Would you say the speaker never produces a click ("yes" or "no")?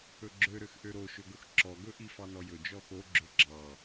no